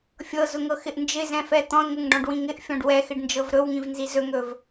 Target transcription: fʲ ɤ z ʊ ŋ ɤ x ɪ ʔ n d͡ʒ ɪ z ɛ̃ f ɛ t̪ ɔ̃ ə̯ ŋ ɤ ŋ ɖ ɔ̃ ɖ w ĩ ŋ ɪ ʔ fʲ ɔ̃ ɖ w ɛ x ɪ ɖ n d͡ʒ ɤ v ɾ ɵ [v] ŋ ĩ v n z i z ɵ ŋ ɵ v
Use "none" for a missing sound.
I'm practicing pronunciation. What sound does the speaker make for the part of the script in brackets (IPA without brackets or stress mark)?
w